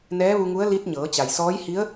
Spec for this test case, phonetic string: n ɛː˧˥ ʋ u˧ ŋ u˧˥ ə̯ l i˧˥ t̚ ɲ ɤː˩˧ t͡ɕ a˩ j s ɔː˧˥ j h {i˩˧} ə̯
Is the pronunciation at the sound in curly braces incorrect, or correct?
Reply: incorrect